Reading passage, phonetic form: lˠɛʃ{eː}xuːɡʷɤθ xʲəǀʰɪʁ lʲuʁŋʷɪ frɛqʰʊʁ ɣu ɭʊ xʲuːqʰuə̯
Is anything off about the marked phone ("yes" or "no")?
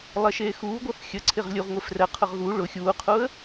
no